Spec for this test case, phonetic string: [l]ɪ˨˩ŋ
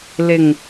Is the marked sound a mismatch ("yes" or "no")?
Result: no